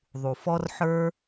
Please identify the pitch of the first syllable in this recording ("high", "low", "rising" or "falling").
low